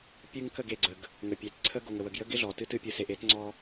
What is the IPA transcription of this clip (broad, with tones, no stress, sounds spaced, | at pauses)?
pʲ ɨ˦ ŋ k ə˦˨ ɡ e˨ ɡ͡ǀ ə˨ ɡ | ŋ ə˨ pʲ e˨ t ǀʰ ə˦ ɡ o˨ ŋ ə˨ w ə˨ ɡ j ə˦ ɡ ɪ˦ ɮ ɔ˨ t ɨ˦ t ɨ˦ pʲ ɨ˨ s e˨ ʔ e˦ t ŋ͡ǀ ɔ˦